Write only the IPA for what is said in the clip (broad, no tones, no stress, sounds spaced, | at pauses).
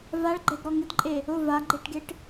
v a ɭ ɡ͡ǃ ɛ ɡ ɾ ɔ ŋ ɪ d ǃʼ e | ʊ v a ɡ͡ǃ e ʈ ɡ e ʈ